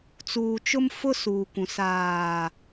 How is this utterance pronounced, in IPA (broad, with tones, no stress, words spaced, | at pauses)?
t͡suː˨t͡ʃʊ˦m fʊ˦ suː˨kʷũ˨ saː˨